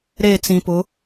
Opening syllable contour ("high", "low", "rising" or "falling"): falling